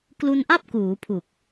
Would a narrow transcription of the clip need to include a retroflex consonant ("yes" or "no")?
no